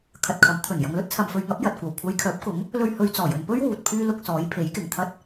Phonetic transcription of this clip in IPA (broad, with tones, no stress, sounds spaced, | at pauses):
kʰ ɐ˨ t̚ kʰ ɐ˨˥ m t̪ʰ ɵ˨˩ n j ɐ˨ ŋ l ɵ˥ t̚ t͡sʰ ɐ˨ m f ɵ˨˧ ɥ ŋ ɐ˨˥ p̚ j ɐ˨ t̚ kʷ ɐ˨˩ w kʷʰ ɐ˨˧ j kʰ œː˨˥ p̚ k ʊ˨˥ ŋ | l ɵ˧ ɥ h ɵ˨˧ ɥ t͡s ɔː˨˩ j ɵ˨ n p ɵ˥ ɥ w uː˨ t̚ pʰ yː˥ l ʊ˧ k̚ s ɔː˨˥ j pʰ e˨˥ j k ɪ˨˩ ŋ t̪ʰ ɐ˥ t̚